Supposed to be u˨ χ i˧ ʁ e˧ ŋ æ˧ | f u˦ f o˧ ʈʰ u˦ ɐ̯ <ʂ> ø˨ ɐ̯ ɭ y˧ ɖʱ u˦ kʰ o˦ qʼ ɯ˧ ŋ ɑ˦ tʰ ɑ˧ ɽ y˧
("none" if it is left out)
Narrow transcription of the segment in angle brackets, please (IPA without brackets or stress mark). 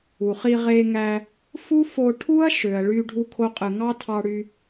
ʃ